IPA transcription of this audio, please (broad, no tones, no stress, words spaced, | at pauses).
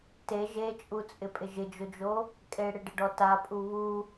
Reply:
te ʒet͡ʃʼut͡sʼɪpʼɪ ʒɪd͡ʒʊd͡ʒo | kʼeɽɪɖɪɖɔ tapʼu βu